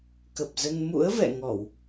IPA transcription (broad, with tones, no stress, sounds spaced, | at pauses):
k ə˨˩ p̚ z ə˧ n m ṵ˧˥ ə̯ v ɛ̰˧˨ ŋ ɔ˧˩˨ w